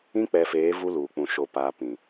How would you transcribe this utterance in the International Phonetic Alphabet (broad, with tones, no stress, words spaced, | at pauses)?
ĩ˦k͡pɛ˨feː˨˦ vu˦luː˨k͡pũ˨ ʃo˨paː˨pĩ˨